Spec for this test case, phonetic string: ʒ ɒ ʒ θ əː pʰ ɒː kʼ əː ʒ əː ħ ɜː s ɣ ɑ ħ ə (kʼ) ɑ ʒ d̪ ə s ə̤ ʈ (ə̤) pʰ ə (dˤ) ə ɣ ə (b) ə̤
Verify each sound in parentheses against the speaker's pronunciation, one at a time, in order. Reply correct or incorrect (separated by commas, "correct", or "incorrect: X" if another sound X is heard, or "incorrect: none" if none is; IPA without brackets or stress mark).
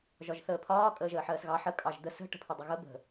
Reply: correct, correct, correct, correct